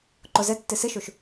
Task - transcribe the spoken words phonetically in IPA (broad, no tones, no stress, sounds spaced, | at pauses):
ǃ o z ɘ tː ɨ s ɨ ʃ u ʃ